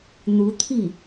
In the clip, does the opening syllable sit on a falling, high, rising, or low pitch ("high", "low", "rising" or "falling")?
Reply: rising